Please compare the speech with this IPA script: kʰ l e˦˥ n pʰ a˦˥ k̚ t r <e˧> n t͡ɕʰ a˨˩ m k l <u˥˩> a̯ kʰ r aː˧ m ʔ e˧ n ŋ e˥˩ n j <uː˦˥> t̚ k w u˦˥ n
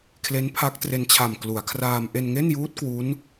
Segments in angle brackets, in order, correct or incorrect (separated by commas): correct, incorrect, correct